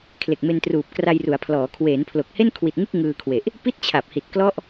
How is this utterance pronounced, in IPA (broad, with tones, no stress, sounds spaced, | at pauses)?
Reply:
kʰ l e˨˩ k̚ m e˧ n t r uː˨˩ p̚ k r a˧ j r u˩˦ a̯ pʰ l ɔː˩˦ kʰ w eː˩˦ n pʰ l o˨˩ k̚ h e˥˩ n kʰ w i˨˩ t̚ ŋ ɯ˥˩ k̚ ŋ ɯː˧ kʰ w e˨˩ ʔ | p i˥˩ t̚ t͡ɕʰ a˨˩ p̚ h i˨˩ t̚ k l ɔ˥˩ ʔ